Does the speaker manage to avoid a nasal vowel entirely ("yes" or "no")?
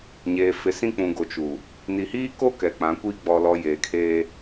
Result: no